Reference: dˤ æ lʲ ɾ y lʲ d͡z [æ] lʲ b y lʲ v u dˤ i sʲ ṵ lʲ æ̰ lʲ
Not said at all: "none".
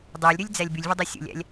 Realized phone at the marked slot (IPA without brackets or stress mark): æ